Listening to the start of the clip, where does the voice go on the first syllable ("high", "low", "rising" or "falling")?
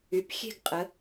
rising